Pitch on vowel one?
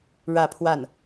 falling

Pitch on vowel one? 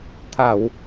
low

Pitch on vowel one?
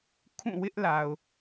falling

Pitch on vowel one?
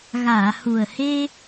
low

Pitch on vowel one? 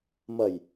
low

